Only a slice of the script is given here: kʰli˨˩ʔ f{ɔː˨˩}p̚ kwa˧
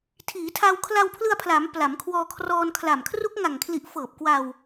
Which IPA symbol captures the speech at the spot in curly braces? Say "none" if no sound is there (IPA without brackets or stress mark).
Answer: ɤː˨˩